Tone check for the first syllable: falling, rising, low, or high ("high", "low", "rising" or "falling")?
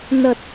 low